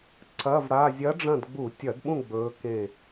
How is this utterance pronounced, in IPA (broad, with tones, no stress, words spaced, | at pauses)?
ǀɐ˧˥˧vɽa˧˥˧ zʲɐ˧˥ɖ͡ʐɐ̃˦˨d ɡ͡bu˧˩˧tʲɐ˧˩˧dɓũ˦˨ ɡ͡bɵː˧˥kẽ˦˨